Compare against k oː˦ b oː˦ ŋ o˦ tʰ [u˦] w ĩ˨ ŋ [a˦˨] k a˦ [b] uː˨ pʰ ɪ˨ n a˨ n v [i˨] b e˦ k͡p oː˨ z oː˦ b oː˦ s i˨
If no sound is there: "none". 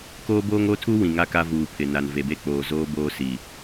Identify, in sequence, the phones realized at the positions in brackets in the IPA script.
u˦, a˦˨, v, e˨

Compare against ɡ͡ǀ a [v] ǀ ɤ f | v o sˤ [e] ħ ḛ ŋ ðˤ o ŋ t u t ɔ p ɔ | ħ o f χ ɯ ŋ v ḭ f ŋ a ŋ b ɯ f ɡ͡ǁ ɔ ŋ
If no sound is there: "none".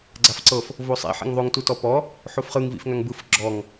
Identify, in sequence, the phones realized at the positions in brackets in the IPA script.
f, ḛ

